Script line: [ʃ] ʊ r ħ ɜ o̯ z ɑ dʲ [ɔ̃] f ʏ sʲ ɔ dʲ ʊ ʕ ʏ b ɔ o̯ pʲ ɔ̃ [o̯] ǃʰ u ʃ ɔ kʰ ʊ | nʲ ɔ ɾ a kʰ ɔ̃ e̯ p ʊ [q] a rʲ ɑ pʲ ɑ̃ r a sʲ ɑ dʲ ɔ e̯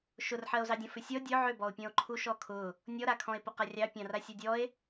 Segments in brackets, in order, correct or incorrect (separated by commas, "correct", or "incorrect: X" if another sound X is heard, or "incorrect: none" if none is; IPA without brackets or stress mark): correct, correct, correct, correct